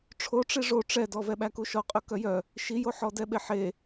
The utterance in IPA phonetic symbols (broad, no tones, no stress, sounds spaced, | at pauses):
ʈ͡ʂʰ o ʈ͡ʂ i ʐ o ʈ͡ʂ ɛ d ɔ v ɛ ɓ æ k u ʃ ɔ qʼ ɵ k œ j œ | ʃ i j o ħ ɔ d ɛ ɓ e ħ e